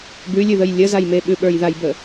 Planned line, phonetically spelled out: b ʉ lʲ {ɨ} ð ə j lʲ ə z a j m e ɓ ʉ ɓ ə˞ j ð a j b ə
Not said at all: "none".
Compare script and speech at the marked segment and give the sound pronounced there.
ʉ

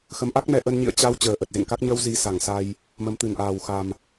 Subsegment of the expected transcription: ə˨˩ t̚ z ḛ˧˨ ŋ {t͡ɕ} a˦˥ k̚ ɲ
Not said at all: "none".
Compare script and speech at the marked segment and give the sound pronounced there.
k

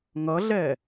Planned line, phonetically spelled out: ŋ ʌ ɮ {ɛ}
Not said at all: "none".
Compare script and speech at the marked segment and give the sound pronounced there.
ɛ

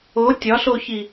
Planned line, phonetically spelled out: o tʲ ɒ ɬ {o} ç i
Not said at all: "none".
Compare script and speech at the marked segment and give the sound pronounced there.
o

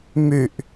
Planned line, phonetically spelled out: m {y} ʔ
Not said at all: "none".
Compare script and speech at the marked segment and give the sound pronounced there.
y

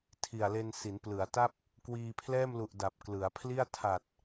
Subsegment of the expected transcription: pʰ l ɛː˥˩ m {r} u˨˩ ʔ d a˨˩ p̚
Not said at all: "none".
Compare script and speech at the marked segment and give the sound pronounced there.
l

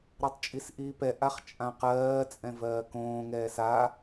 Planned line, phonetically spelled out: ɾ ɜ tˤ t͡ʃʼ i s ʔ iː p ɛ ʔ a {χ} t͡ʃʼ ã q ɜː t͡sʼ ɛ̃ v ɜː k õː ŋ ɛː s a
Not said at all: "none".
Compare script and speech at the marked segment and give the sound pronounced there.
χ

